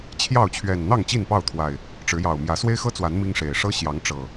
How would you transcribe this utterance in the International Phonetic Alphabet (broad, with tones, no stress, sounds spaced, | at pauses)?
t͡ɕʰ j ɑ˥˨ ʊ̯ t͡ɕʰ ɥ ɛ˨˩ n n̪ ɑ˥˨ ŋ t͡ɕ i˥˨ n p ɑ˥˨ ʊ̯ t̪ʰ w a˨˩ ɪ̯ | ʈ͡ʂ ɻ̩˨˦ j ɑ˨˩ ʊ̯ m j ä˨˦ s w e˦ ɪ̯ x ɤ˦ t͡s w a˨˦ n m i˦ ŋ ʂ e˨˩ ɪ̯ ʂ ɤ˦ ɕ j ɑ˨˦ ŋ ʈ͡ʂ ɤ˨˩